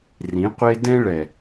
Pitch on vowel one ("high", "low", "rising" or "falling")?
rising